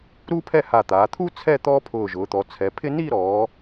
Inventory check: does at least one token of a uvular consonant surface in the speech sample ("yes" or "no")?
no